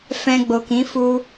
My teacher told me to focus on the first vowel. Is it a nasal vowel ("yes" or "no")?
yes